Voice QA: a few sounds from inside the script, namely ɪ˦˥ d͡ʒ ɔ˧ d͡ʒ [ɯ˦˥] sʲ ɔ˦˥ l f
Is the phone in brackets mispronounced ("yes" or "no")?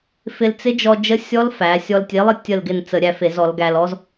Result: yes